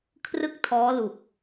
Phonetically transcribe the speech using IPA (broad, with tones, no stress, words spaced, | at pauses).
kʰrɯ˥˩k̚tʰɔː˦˥lu˨˩k̚